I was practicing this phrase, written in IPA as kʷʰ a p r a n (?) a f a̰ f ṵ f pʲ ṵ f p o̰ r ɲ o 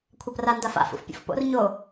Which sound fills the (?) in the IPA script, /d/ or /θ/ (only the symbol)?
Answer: d